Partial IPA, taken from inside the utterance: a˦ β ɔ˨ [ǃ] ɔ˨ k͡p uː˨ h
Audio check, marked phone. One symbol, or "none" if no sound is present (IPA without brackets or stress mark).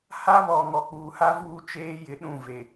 ŋ